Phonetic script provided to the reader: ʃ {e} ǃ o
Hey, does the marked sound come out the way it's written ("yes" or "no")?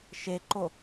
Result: yes